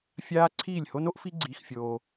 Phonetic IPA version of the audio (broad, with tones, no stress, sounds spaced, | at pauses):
fʲ aː˦ ǀʰ iː˦˨ lʲ h o˦ n o˦ ʔ f i˦ ɡ͡ǀ iː˧ x fʲ oː˧